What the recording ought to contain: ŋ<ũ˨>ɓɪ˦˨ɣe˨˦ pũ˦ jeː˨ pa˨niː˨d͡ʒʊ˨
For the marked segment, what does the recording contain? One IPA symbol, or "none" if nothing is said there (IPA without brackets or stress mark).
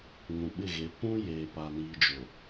ũ˨